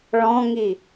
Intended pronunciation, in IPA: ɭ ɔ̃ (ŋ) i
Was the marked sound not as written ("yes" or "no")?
no